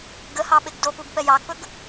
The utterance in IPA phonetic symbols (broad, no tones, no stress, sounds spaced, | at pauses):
ɡ ə h ɑ ɓ e ɡ d o p u ɡ p ɛ j ɑ ɡ p ɵ ɡ